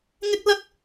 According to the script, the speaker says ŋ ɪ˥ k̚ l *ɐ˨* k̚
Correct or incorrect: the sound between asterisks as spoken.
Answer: incorrect: ɐ˥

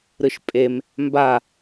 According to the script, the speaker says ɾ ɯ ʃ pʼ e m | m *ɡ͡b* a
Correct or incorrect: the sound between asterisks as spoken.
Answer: incorrect: b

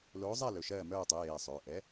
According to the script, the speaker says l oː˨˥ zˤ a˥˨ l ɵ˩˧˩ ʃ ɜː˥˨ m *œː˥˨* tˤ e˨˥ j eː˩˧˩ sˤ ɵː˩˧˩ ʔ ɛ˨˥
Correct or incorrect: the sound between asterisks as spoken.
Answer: correct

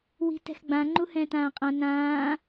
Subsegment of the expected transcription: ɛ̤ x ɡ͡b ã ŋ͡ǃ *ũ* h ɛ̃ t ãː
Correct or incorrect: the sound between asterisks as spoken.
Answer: incorrect: u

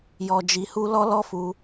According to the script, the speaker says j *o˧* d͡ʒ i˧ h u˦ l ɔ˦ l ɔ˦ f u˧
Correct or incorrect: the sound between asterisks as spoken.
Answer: incorrect: ɔ˧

